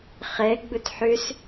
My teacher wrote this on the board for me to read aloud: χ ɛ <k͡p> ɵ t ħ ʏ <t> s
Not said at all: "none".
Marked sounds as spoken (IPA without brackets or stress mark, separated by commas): ɡ͡b, none